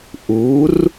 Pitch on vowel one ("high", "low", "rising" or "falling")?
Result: rising